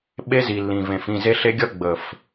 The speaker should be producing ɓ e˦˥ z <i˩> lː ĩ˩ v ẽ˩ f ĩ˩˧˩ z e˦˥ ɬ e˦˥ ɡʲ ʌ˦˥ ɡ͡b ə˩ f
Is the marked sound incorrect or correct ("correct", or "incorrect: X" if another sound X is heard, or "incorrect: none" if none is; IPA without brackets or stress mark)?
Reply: correct